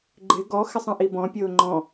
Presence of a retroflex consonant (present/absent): absent